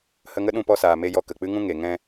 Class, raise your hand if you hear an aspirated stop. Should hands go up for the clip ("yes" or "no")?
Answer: no